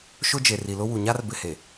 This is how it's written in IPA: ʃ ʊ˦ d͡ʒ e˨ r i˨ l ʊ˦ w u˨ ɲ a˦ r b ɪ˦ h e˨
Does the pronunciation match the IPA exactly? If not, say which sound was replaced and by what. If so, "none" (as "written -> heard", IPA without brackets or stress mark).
none